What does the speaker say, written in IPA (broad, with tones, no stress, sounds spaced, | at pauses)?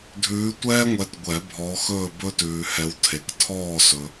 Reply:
dʱ ʉː˨˦ tʷ ɛː˦ ŋʷ ɛ˨˦ t ɡʷ ɛ˨˩˦ bʱ ɔ˨˦ x ɵː˦˨ b ɵ˦ t ʉː˨ h ɛ˨˦ w tʰ e˨ k tʰ ɔː˦˨ s ɵ˨